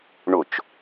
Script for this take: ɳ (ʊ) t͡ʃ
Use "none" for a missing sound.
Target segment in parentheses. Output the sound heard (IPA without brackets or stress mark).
ʊ